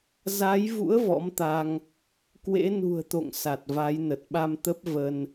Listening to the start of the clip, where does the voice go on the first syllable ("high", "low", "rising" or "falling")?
rising